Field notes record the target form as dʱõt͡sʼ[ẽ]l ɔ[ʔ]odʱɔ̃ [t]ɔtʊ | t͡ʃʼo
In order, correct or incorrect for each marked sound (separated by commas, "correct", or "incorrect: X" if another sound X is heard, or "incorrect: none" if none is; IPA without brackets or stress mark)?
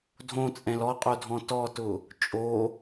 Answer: incorrect: ɛ̃, incorrect: qʼ, correct